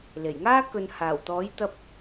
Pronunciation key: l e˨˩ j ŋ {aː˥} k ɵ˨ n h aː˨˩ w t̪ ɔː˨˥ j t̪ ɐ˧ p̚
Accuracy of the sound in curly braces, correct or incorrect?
correct